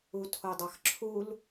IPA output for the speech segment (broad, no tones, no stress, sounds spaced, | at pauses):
u tʰ o dˤ ɑ x ǁʰ u l